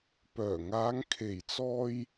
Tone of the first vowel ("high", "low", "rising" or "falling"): low